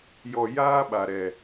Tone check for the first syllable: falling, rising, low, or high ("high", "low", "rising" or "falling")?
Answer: low